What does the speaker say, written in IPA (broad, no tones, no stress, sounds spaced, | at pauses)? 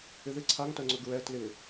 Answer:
ɪ ð ɪ ǀʰ a ŋ t œ ŋ͡ǀ ɵ ɡ ɹ ɛ t l ɪ